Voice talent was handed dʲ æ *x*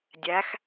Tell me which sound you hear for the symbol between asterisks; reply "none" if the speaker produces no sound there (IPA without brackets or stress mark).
x